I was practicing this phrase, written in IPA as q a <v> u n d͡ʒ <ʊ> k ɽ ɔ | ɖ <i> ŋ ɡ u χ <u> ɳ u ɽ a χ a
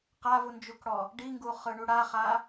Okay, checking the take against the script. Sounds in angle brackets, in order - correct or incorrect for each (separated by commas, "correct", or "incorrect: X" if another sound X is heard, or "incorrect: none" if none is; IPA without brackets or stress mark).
correct, incorrect: u, correct, incorrect: ɯ